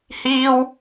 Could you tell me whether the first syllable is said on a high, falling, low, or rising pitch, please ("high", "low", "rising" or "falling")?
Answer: high